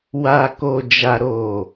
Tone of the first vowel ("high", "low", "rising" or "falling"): low